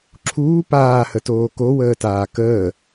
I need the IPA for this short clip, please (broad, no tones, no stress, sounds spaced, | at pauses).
ǁʰ uː p aː h ə t oː k o w əː t aː k əː